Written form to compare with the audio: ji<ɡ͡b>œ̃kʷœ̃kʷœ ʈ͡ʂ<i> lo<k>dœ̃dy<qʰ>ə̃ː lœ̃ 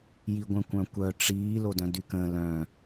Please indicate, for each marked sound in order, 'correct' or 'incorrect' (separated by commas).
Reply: incorrect, incorrect, incorrect, incorrect